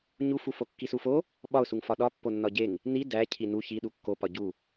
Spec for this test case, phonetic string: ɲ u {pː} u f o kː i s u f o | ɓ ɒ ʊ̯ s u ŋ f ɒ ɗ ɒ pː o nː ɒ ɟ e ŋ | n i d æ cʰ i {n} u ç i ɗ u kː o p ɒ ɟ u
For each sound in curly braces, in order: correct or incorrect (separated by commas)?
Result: incorrect, correct